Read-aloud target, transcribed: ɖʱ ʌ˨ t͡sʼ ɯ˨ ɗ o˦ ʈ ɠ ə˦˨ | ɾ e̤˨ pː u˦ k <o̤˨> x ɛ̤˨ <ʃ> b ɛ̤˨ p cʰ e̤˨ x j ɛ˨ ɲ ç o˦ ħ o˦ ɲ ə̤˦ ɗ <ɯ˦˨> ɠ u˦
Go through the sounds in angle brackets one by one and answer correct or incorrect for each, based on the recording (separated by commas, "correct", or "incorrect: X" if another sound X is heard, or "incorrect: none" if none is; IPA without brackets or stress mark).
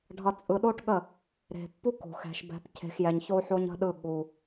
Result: correct, correct, correct